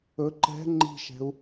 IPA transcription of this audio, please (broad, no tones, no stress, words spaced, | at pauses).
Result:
ɵ ǃɛ̤ ŋ͡ǃi̤ʃɛ̤u̯